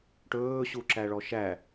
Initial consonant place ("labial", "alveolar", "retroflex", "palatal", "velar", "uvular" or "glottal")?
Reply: retroflex